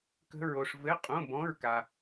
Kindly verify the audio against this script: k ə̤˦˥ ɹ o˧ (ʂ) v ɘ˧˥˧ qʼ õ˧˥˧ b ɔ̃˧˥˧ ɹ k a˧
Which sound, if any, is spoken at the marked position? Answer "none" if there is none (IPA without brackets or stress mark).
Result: ʂ